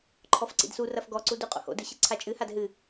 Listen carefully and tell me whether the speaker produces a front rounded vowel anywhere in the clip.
no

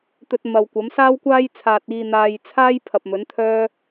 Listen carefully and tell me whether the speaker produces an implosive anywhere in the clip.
no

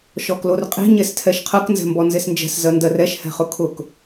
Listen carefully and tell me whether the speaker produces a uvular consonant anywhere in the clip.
yes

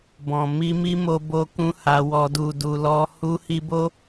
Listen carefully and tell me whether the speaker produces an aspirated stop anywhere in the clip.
no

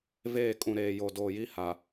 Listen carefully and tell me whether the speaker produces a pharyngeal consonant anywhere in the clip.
no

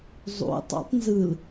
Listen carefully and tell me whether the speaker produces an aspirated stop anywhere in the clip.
no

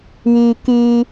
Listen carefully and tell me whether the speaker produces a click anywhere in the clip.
no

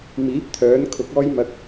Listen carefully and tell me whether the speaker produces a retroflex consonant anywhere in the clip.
no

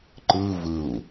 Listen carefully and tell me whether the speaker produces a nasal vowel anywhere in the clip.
no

